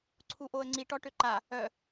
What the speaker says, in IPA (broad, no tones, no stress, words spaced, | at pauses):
ǀʰuʔoə̯ŋ͡ǀi ʈɔʈøǃa | œ